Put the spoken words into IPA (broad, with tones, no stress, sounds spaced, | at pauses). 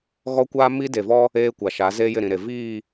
ɣ ɔ˦ kʷ aː˦ m i˦ d e˨ v ɔ˦ | eː˦ kʷ a˨ ʃ a˨˦ z eː˦ j ɪ˦˨ ɾ ĩ˨ ɾ e˨ v iː˦˨